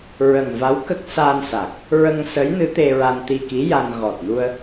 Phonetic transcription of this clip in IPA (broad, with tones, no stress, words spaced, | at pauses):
ɹə˨˩ŋva˧˥w kə˦˥k̚sa˧nsa˨˩k̚ | ɹə˧ŋsə˧˥jnɨ˧˥ t̪e˧ɹa˧n t̪i˧ki˧˥ja˧n ɣɔ˨˩t̚nu˧ə̯